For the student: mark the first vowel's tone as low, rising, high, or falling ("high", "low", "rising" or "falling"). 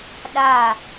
falling